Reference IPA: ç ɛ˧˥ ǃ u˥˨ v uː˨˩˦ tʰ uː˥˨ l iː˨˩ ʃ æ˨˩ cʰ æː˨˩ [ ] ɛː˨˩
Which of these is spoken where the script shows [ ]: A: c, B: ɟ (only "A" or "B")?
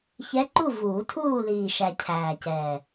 A